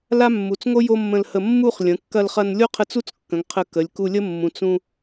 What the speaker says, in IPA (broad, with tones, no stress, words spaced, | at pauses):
la˥mːu˩˧t͡sŋo˥ jo˥mːə̃˧lhə˧ mːu˥˧χ lʲə̃˩˧kːɐ˧lχɐ˧n lʲo˥qʰə˧ t͡su˥t͡skːə̃˩˧ŋ qʰə˧˩ kə˩˧lʲku˧lʲə˥ mːũ˩˧t͡sũ˧